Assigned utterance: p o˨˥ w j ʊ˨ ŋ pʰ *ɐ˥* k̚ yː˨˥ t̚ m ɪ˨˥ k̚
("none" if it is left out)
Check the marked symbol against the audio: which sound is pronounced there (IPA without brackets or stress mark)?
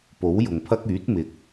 ɐ˥